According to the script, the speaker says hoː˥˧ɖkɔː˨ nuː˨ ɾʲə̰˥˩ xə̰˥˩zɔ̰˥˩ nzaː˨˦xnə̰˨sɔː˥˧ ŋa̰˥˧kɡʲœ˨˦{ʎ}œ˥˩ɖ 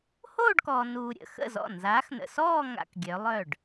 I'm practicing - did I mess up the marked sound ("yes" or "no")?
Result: yes